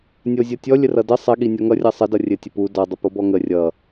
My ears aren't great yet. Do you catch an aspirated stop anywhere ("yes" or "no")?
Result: no